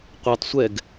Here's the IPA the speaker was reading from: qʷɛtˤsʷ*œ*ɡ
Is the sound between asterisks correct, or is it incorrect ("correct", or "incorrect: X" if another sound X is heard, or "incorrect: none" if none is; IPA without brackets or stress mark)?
incorrect: ɛ